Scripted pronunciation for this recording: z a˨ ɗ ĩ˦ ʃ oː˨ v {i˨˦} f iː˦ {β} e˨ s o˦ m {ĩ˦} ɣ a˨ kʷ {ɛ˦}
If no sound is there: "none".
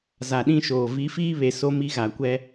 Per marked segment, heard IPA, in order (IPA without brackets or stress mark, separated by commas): i˨˦, β, i˦, ɛ˦